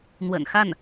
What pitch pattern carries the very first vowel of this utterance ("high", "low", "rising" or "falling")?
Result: low